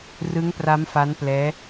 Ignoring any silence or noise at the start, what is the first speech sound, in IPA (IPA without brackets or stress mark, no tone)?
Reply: r